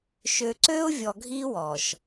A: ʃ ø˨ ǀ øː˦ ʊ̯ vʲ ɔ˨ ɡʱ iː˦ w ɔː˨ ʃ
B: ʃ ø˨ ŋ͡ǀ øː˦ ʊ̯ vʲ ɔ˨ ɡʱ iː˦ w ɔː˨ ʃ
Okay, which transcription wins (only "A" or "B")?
A